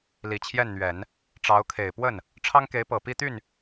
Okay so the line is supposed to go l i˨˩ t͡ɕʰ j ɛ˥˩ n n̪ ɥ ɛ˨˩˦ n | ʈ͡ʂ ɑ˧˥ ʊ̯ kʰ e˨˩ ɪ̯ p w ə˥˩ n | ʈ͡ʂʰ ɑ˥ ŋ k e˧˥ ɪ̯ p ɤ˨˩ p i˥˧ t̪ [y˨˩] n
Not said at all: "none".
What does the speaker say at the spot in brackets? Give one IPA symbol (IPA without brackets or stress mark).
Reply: y˥˩